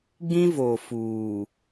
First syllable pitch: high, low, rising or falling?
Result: high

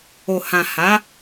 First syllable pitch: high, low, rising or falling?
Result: low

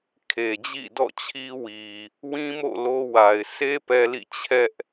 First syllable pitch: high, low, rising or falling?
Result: low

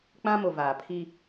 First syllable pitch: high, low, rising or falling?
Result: high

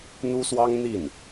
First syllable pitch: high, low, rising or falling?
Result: high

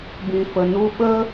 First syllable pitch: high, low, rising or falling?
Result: low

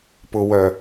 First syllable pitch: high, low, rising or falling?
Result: low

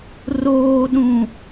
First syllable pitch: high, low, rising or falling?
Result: low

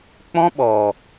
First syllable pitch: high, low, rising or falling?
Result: high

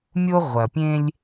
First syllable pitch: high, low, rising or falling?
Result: high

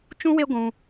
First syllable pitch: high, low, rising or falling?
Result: high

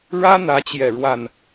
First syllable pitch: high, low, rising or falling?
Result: high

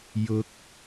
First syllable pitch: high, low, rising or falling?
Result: rising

